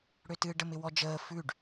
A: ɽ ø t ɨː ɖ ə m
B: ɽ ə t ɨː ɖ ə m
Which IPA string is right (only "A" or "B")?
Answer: A